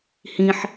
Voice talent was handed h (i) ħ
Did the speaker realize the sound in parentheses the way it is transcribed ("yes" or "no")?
no